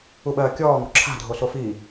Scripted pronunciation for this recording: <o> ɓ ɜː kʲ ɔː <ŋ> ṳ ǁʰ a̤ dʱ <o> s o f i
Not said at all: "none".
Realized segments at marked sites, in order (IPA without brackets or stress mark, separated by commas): u, ŋ, o